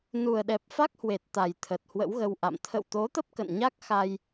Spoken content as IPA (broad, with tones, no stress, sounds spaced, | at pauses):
n u˨˩ ə̯ ɗ ɛ˨˩ p̚ f a˦˥ k̚ h w e˨˩ t̚ t̪ a˨˩ j t̪ʰ ə˨˩ t̚ h w ə̰˧˥ w ɣ ə˧ w ʔ a̰˧˨ m t̪ʰ ə̰˧˨ w t̪ o˨˦ t̪ ə˦˥ p̚ k ə̰˧˨ n ɲ a˦˥ k̚ x a˧ j